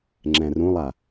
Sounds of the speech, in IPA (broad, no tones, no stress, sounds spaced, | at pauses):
ŋ͡ǁ ɛ̃ r ũ lˠ a